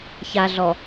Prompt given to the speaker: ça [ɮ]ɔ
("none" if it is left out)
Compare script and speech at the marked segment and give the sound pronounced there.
ɮ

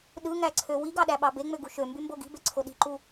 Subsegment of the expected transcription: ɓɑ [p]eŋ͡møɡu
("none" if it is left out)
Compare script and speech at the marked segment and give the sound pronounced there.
b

